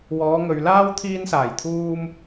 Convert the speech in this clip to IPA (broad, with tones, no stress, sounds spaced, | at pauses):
w ɔː˨˧ ŋ ɵ˨ ɥ l aː˥ w t̪ʰ iː˧ n s aː˨˩ j t̪ʰ uː˧ m